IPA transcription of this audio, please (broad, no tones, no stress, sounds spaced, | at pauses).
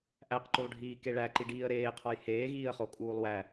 ʔ æ q ǃ u lˠ ɖʱ iː k e ɭ æ ǃ i ɖ iː ə̯ ɾ eː qʰ ɒ j h eː ɣ iː ə̯ χ o kʼ uː lˠ w æ